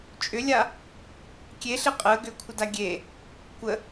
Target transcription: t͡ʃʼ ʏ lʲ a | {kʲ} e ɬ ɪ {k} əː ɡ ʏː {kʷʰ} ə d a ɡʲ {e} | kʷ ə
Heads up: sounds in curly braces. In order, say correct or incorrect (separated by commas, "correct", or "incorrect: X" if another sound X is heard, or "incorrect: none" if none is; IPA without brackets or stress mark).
correct, incorrect: qʼ, correct, correct